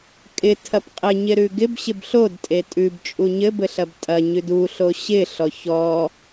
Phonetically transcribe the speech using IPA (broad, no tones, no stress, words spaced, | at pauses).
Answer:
kʼɪ tʰɐpqʼɘɲɪɾʉ ɡɪb ɕɪbɬodtʼe tʼʉbt͡ʃʼu ɲɘbɘɬɐb tʼɐ ɲʉduɬo ɕɪɬɔ çɔ